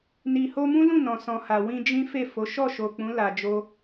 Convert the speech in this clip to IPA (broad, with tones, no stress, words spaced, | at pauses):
ni˨ho˧mũ˦lũ˦˨ nɔ̃˨sɔ̃˨ha˨ wĩ˧d͡ʒĩ˦fe˦˨fo˨˦ ʃɔ˦˨ʃo˨k͡pũ˨˦ la˧d͡ʒo˦